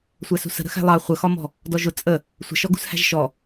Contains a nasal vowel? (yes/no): no